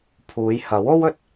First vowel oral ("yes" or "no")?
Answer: yes